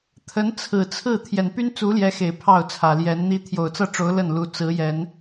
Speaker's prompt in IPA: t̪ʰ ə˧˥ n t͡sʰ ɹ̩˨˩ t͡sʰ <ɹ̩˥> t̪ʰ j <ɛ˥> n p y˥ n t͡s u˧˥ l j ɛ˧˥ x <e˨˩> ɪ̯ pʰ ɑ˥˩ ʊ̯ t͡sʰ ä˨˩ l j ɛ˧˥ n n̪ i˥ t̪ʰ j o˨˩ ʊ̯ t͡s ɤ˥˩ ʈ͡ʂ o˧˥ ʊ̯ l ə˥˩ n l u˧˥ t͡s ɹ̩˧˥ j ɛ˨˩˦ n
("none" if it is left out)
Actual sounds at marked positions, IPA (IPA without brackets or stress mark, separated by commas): ɹ̩˥˩, ɛ˨˩, e˨˩